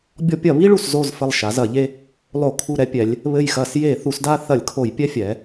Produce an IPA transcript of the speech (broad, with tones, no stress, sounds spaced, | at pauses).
bʲ ɔ˦ pʲ ɐ˧˩˧ β i˦ ɭ u˧˩ s z o˧˩ z f ɘ˧˩ lˠ ʃ a˩˧ z ɐ˧˩˧ ʎ e˦ | lˠ o˧˩˧ kʰ u˧˩ ɾ ɛ˦ pʲ ɛ˩˧ lʲ | β ɘ˧˩ j x ɐ˧˩˧ s j e˧˩˧ θ u˩˧ s d a˦ θ ɐ˧˩˧ lʲ kʰ o˧˩˧ j pʲ ɛ˦ fʲ ɛ˩˧